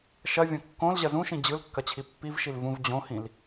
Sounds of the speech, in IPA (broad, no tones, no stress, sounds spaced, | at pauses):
ʃ ɐ vʲ ɐ̃ kː õ l ʑ ɐ z ũ ʃ ĩ d͡ʑ ɯ l kː ɐ t͡ɕʰ i pː i v ʃ i l v ũ v d͡ʑ õ h ĩ l